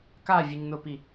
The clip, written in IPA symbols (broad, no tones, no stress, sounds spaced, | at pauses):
k a vʲ ɨ ɲ n ʊ p i